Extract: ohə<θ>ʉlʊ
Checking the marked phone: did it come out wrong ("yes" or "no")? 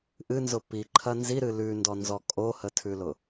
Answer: yes